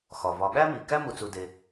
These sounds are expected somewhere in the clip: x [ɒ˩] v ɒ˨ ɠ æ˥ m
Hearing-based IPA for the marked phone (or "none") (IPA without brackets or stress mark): ɒ˩